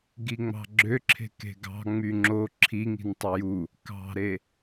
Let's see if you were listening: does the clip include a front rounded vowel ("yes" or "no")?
yes